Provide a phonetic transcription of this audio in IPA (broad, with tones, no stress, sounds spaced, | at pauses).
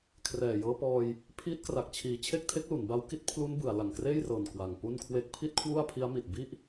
kʰ r ɛː˨˩ j ɤː˧ p ɔː˧ j | pʰ iː˦˥ t̚ k r a˨˩ k̚ t͡ɕʰ iː˨˩ t͡ɕʰ e˥˩ k̚ tʰ e˦˥ k̚ l u˩˦ n b a˦˥ w k i˦˥ t̚ pʰ l u˦˥ n b ɯ˩˦ a̯ l a˨˩ ŋ k r eː˥˩ j r ɤː˨˩ n k w a˨˩ ŋ p u˥˩ n kʰ w e˥˩ k̚ pʰ i˥˩ t̚ kʰ w u˥˩ a̯ pʰ i˦˥ a̯ m i˨˩ t̚ b i˥˩ ʔ